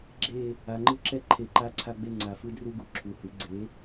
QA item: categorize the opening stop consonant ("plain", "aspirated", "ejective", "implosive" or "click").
click